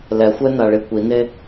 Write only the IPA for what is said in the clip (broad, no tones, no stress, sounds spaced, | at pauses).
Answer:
l ɛ xʷ ɛ n a ɭ i kʷ i n e